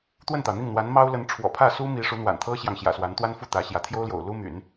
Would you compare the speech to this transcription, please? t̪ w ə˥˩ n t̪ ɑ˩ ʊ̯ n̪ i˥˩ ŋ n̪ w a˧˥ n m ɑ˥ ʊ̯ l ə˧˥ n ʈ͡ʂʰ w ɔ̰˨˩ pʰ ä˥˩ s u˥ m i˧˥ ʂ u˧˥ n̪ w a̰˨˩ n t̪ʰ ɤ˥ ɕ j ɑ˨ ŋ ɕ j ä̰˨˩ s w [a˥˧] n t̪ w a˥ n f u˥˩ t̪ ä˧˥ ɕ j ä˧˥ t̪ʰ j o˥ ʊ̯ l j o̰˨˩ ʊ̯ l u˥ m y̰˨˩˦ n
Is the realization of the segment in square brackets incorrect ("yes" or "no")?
yes